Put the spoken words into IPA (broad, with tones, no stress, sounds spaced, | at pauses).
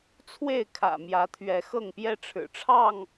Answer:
t͡sʰ w e˥˨ ɪ̯ kʰ ä̰˨˩ m j ä˨˦ t̪ʰ ɥ ɛ˨˦ x ɤ˥˨ ŋ p j ɛ˦ ʈ͡ʂʰ ɻ̩˨˩ ʈ͡ʂʰ ɑ˥˨ ŋ